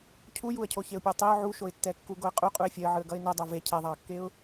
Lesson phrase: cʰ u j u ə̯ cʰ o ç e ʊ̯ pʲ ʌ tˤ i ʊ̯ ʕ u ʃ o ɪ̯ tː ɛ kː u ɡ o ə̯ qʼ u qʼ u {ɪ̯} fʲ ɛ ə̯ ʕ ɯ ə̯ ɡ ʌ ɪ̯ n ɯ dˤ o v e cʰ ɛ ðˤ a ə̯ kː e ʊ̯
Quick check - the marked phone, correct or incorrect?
correct